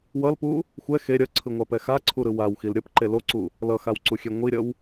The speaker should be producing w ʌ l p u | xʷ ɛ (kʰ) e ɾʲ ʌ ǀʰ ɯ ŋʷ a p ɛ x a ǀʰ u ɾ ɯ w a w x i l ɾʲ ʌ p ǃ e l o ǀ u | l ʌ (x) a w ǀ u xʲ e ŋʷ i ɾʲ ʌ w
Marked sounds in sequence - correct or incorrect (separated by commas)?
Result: incorrect, correct